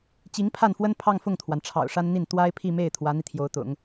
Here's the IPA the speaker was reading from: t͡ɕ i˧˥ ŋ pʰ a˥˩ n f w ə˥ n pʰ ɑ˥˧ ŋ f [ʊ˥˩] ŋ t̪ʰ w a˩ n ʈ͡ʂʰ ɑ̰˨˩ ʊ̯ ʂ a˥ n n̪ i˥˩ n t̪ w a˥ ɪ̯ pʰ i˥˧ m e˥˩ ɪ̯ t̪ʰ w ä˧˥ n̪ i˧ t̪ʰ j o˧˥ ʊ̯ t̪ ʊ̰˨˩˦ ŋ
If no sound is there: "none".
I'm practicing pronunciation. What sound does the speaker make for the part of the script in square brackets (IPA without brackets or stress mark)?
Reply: ʊ˥˩